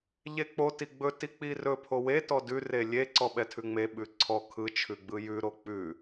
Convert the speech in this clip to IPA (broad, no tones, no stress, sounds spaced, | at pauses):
ʎ e k͡p o t i ɡ͡b ɵ t i k͡p i r ɵ pʰ o w e t ɔ d ʉ r e lʲ e ǀ ɔ ɓ ɛ tʰ ʉ ŋ͡m e ɓ ʉ ǀʰ ɔ kʰ ɯ t͡ʃʰ ʉ ɡ͡b ɯ j ʉ ɾ o k͡p ʉ